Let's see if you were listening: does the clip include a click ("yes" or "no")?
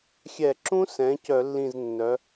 yes